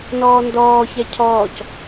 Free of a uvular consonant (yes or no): yes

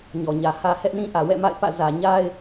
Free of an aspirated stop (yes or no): yes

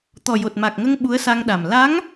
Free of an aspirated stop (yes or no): yes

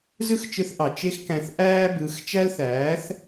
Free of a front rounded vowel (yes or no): yes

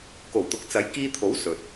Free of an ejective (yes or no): yes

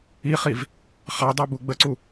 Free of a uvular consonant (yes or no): no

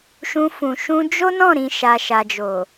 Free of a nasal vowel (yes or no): no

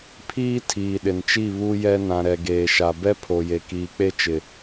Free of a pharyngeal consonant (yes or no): yes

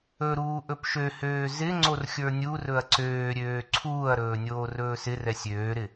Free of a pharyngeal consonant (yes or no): yes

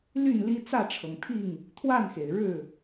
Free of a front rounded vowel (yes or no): no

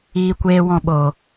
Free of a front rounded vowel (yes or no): yes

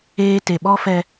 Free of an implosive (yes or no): no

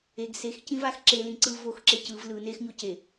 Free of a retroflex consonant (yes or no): yes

